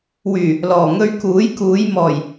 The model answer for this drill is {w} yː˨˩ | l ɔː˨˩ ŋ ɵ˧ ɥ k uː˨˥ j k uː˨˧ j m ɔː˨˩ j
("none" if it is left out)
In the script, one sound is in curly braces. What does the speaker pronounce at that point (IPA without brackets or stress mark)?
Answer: w